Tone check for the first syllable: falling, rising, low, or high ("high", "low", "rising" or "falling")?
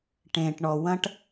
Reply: low